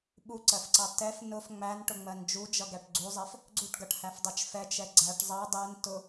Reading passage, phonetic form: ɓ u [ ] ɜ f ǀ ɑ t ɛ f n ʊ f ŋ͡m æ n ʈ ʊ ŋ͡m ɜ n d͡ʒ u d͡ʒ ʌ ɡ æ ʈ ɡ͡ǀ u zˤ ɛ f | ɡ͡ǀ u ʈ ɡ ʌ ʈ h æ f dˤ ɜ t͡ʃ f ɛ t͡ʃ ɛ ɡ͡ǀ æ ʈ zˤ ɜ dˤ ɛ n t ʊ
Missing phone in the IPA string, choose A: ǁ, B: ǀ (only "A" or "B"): B